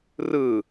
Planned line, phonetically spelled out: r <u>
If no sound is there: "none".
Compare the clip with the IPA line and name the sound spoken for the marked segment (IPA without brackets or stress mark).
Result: ɯ